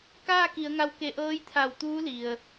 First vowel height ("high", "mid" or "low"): low